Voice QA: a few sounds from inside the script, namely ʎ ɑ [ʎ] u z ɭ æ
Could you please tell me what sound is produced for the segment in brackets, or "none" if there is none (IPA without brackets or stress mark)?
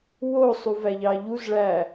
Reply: ʎ